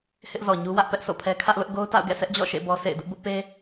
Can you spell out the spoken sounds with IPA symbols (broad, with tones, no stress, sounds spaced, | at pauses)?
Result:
h ɪ˦ ʔ z ɔ˨ ɲ u˦ w ä˦ ʔ p ɛ˦ ʔ sʰ o̰˦˨ pʰ ɛ˦ kʰ ä˦ ʔ l ʊ˦ ʔ ɡ o˦ ʊ̯ t a̰˦˨ ʊ̯ ɡ ɛ̰˦˨ sʰ ɛ˦ ʔ d͡ʑ ɔ̰˦˨ ʃ ḛ˦˨ b ɔ˦ sʰ ḛ˦˨ ɪ̯ d ʊ˦ ʔ b ʊ˦ ʔ p e˦